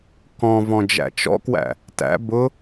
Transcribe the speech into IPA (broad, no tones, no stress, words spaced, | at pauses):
kɔ̃ vɔ̃d͡ʒæ̰t͡ʃɔ̰kwæ̰ | tæ̰ bʊ